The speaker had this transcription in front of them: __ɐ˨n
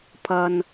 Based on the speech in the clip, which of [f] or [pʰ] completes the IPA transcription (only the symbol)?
pʰ